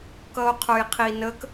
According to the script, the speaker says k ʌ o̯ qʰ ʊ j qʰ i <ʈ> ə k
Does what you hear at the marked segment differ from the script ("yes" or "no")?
yes